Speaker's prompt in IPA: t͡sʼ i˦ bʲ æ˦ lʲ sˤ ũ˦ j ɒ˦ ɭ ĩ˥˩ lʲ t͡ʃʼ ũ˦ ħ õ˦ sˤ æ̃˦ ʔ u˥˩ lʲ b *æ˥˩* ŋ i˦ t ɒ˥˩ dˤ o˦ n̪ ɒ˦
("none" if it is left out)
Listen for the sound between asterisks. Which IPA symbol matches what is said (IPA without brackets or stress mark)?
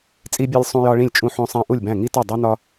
æ̃˥˩